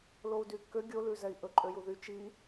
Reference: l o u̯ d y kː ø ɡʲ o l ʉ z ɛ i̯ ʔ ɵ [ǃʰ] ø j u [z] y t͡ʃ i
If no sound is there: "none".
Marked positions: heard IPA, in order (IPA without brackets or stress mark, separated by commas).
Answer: ǃʼ, ð